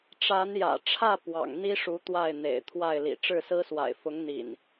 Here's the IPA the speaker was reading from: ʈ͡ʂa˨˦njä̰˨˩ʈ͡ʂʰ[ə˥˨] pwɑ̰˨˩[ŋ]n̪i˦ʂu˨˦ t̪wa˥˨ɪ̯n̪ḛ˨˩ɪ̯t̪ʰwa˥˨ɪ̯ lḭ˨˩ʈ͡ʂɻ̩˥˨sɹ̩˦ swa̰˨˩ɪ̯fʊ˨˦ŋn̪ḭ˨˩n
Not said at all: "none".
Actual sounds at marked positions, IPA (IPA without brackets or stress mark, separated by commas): ä˥˨, ŋ